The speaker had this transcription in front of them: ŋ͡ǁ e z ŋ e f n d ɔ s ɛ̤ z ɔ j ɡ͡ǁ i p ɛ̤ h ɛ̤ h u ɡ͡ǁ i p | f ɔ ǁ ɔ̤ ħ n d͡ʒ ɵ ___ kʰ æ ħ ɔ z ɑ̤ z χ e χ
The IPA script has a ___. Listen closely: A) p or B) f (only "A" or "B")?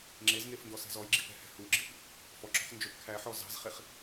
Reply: A